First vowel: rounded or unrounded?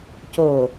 rounded